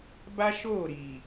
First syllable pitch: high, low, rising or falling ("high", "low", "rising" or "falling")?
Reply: high